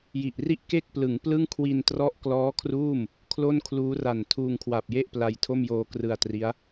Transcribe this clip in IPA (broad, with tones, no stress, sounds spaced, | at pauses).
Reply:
j i˨˩ ʔ r i˥˩ ʔ k e˥˩ k̚ p l ɯ˩˦ ŋ p l ɯ˥˩ ŋ kʰ w i˧ n t r ɔ˦˥ ʔ k l ɔː˦˥ kʰ r uː˥˩ m | kʰ l o˥˩ n kʰ l uː˦˥ r a˨˩ n tʰ uː˧ ŋ kʰ w a˨˩ p̚ j e˥˩ ʔ p l a˧ j tʰ o˥˩ m j oː˧ k r ɯ˧ a̯ t r i˦˥ a̯